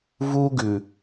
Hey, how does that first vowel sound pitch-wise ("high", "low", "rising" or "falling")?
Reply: high